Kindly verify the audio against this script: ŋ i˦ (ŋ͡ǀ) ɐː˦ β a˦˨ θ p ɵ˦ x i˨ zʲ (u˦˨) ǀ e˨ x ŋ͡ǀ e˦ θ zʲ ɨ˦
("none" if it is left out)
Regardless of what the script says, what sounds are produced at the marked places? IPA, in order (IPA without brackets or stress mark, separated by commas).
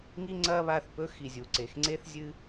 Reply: ŋ͡ǀ, u˨